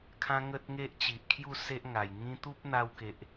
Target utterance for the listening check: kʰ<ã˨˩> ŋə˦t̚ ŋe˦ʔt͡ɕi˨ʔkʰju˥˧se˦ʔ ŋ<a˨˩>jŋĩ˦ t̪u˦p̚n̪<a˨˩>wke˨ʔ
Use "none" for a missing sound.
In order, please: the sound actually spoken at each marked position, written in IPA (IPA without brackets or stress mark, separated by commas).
ã˦, a˨˩, a˧